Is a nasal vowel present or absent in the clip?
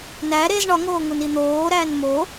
absent